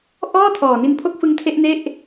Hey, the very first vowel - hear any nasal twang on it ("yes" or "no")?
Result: no